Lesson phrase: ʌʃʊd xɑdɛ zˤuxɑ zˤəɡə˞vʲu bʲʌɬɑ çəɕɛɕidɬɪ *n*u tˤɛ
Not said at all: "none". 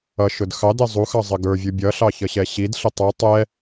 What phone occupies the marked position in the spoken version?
tˤ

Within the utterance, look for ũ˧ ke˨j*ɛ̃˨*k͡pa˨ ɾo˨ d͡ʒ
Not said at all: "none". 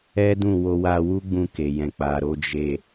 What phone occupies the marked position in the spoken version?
ɛ̃˨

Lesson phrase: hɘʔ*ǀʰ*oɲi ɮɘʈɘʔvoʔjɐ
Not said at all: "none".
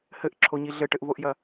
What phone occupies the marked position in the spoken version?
ǁʰ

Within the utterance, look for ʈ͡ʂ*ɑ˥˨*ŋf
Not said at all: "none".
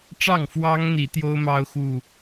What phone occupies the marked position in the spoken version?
ɑ˥˨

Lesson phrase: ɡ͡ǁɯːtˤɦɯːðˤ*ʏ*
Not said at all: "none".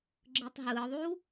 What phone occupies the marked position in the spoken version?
u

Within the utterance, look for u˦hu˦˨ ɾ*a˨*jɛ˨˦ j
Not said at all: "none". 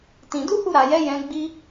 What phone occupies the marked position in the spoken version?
a˨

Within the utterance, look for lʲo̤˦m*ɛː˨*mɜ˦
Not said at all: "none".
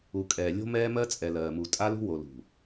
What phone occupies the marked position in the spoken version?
ɛː˦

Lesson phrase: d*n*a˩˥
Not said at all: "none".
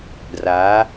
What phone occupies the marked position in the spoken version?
r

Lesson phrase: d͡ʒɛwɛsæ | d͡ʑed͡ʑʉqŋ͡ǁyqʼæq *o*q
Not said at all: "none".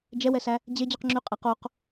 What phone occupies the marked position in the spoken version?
o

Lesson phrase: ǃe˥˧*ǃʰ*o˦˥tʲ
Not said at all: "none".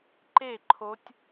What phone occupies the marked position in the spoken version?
ǃʰ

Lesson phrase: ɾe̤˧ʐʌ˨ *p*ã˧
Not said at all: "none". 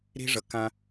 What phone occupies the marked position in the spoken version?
k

